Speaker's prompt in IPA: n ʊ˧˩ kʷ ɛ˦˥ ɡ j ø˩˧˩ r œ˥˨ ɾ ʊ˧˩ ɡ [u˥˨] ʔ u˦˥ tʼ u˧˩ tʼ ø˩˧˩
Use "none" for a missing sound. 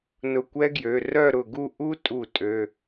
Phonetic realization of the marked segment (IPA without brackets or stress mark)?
u˥˨